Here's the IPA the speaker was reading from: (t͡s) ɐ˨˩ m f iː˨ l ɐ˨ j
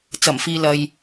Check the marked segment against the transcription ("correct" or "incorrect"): correct